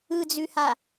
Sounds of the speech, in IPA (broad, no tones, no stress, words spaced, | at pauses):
ɯd͡zʉha